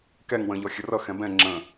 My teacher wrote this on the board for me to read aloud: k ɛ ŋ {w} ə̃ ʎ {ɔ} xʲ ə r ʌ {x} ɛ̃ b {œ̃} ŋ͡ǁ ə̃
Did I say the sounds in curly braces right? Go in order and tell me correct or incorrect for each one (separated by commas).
correct, correct, correct, incorrect